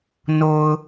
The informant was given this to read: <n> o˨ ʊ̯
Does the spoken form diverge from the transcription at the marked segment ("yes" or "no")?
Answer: no